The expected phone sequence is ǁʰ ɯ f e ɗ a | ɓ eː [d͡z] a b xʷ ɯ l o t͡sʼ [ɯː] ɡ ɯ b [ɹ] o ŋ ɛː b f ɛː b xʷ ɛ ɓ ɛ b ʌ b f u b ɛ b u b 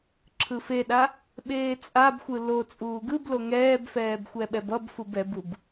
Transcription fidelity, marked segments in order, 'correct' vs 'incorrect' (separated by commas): incorrect, incorrect, incorrect